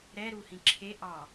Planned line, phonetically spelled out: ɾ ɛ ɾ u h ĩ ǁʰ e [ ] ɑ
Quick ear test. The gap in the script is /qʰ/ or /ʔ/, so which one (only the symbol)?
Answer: ʔ